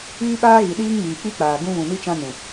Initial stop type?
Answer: implosive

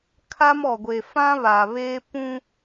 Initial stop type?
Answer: aspirated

